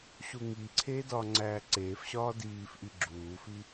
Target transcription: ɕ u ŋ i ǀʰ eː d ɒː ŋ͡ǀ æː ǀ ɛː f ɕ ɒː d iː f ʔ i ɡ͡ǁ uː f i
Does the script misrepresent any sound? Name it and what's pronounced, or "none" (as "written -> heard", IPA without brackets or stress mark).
ɛː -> eː